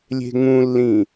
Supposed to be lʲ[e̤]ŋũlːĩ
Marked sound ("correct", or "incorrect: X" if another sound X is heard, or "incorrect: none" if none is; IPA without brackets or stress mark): correct